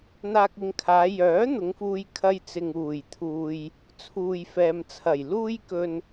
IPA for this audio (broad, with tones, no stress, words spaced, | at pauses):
n̪aː˧k̚ɪ˨˧ŋkʰaː˨˧ jœː˨˥ n̪ʊ˨˧ŋfuː˧j kʰɐ˧jt͡sɪ˨ŋ uː˨˩jt̪ʰuː˨j | t͡sʰuː˨jfɛː˨mt͡sʰɐ˨˩j luː˧jkɵ˨n